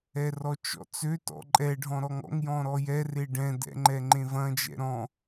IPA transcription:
ɛ r ɔ t͡ʃ ɔ̰ t͡s ø t ɔ̰ ǃʼ ɛ ɖʱ ɔ̃ ɾ ɔ ŋ ɔ̰ ŋ j ɔ̃ ɾ ɔ j ɛ r e ɖ ɛ̃ d ɛ̰ ŋ͡ǃ ɛ ŋ͡ǃ ẽ v ɐ̃ d͡ʒ ɛ̰ ɾ ɔ̃

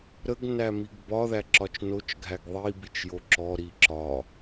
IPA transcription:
ɾ ə ɡ n æ m i ɡ b ɒ ð æ ǁ ɒ t͡ʃ n o t͡ʃ ɡʱ æ ɡ ðˤ i b i t͡ʃ j o ǁ ɔ ɾ i ǁ ɒ

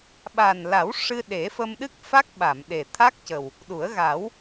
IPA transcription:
ɓ aː˨˩ n l a˨˩˦ w ʂ ɨ˧ ɗ e˨˩˦ f ə˧ m ɗ ɨ˦˥ k̚ f a˦˥ k̚ ɓ a˨˩˨ m ɗ e˨˩ t̪ʰ a˦˥ k̚ c ə˨˩ w | ɗ u˨˩˦ ə̯ ɣ a˨˩˦ w

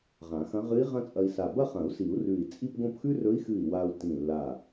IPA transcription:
ʁ ã˨˩˦ x ɐ̃˧˥ ʁ ɨ˧˥ i̯ ʁ ɐ̃˥ t͡sʼ ɐ˧ i̯ s a˧˩ b ɐ˥˧ χ ɐ̃˨˩˦ u̯ s i˨˩˦ u̯ r ʉ˧˩ i̯ t͡sʼ i˥˧ p ɡ õ˥˧ p x ʉ˥ r ɵ˧˥ i̯ x ɨ˧˩ i̯ w a˧ u̯ t ĩ˧˩ lː a˧˩

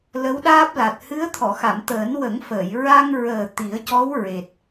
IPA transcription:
l ə˧˥ w ɗ aː˦˥ p̚ l a˨˩ t̚ h ɨ˧˥ ə̯ t̪ʰ ɔ˨˩˨ x a˨˩˨ m t̪ əː˨˩˦ n w ə˨˩˦ ŋ f əː˨˩˨ j ɹ a˧ ŋ ɹ əː˨˩ t̪ i˨˩˦ ə̯ c ɔ˧˥ w ɹ e˨˩ t̚

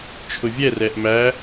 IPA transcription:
t͡ʃʰ ʊ vʲ ɛ r ɛ ʔ m æ

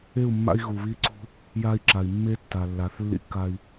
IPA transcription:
e˦˨ u̯ mː a̰˦ i̯ ɣ u˨ β i˦ ǀ ṳ˦ | j a˦ i̯ ǁ a˨ i̯ mː e˦ tː a˨ lː a˨˦ θ lː ḭ˦ kː a˦ i̯

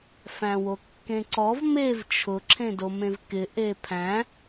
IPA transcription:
f æ̃ w o kː ẽ ǀ ɔ v m e v t͡ʃʰ ʊ ǁʰ ẽ d o m ẽ v k ɪ ʔ e pʰ æ̃

